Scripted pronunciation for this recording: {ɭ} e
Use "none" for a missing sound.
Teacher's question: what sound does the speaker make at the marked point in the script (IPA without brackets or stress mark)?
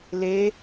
l